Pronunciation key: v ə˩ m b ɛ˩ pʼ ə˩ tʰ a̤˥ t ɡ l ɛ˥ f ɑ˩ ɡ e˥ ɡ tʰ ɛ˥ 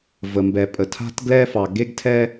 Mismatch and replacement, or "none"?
none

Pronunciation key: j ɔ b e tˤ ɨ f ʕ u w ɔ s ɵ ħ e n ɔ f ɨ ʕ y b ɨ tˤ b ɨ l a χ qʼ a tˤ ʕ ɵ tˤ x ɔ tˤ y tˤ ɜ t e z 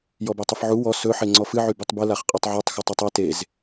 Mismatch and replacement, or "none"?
n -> ŋ͡ǀ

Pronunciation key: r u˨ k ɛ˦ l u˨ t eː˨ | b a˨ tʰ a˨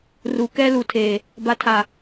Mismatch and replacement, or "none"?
t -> tʰ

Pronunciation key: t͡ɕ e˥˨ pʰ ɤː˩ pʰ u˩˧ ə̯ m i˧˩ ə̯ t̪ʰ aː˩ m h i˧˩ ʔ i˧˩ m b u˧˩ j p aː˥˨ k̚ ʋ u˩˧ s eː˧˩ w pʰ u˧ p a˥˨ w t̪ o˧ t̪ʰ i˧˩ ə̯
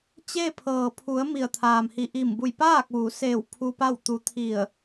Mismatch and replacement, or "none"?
o˧ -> u˧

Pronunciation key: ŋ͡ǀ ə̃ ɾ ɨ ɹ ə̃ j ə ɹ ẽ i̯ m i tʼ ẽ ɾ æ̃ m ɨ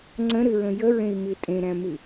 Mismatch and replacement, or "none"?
none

